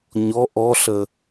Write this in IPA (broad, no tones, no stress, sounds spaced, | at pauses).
ɲ ɔ ʔ ɔ ɬ ə